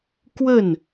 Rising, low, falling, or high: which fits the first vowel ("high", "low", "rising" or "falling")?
falling